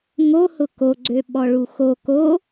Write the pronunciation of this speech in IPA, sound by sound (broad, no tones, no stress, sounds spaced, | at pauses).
ŋ o h ʊ k o ɡ͡ǀ ø ɓ ɔ ɭ u x o k o